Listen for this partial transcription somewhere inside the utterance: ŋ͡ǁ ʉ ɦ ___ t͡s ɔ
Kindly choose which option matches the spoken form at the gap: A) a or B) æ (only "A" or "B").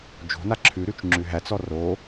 B